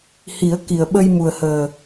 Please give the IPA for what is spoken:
hi˨˩˦ə̯ki˨˩ə̯ɓə˧j mu˨˩ə̯həː˨˩

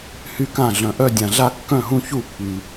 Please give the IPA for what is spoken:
hy˧˩kã˧˩ ɮœ̃˩ʔœ˧˩ dʲã˩ɮa˧˩kːœ̃˧˩ɦũ˧˩ çu˧˩pːy˩

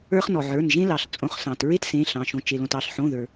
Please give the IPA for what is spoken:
ə˞˦χnɔ˩ʕə˞˩˧˩n ʒẽ˦lɑ˩ɬ t͡sʼõ˩˧˩χsɑ̃˩t ɹe˦t sẽ˩˧˩ɬɑ̃˩ʃõ˩ t͡ʃe˩lõ˩t ɑ˩ɬħõ˩˧˩ ðə˞˩

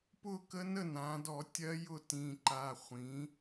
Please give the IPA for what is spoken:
pʊ˥˧kə˦˥nə˥˧ nã˩˥ dɔ˧˩˧ tʲɜ˦˥jʊ˥˧ tĩ˩˧˩ǃa˩˧˩ χʷĩ˩˥

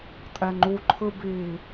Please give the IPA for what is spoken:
tʼɛŋ͡ǃuǃʰɯ bi

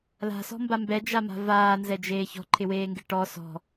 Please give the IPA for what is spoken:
la̤sɔ̤mba mbɛd͡ʒama̤ vaːnzɛd͡ʒeː çɔ̤ǃʰɪweːŋɡɪ ʈɔ sɔ̤

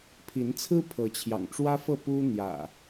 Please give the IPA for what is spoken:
pʰi˨˦nt͡sʰɹ̩˦ pʰɤ˨˦t͡ɕʰjɑ̰˨˩ŋʈ͡ʂwä˦fɤ˥˨ pu˦n̪jä̰˨˩

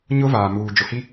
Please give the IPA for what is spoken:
ɲʊ˦ vaː˨muː˨ d͡ʒʊ˨hi˦

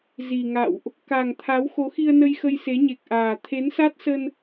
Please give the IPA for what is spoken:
zi˨˩ŋa̰˧˨wʔ | ka˨˩ŋt̪ʰa˨˦w xo˨˦xi˧ə̯nə˧j xə˧jse˨˦ɲe˨˩k̚ʔaː˨˩ t̪ʰe˨˦nsa˦˥t̚sə˧n

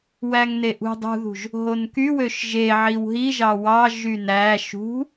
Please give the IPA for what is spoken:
wæŋneʔṳ dˤṳðṳʒ | ɦonky wøʃʒeʕiw ɦiʒɑ wɑ ʒynæ ʃṳ

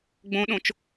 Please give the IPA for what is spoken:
ɡ͡bõɗõt͡ʃ

